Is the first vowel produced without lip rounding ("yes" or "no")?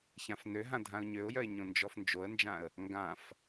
yes